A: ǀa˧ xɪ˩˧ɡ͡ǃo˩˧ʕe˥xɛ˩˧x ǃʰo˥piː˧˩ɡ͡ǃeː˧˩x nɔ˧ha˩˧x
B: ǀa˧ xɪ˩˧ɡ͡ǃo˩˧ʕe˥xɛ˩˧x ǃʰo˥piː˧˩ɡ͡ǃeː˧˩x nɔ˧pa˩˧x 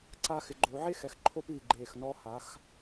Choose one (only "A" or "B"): A